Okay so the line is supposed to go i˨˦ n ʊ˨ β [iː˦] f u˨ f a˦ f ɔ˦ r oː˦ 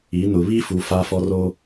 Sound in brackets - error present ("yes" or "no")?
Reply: no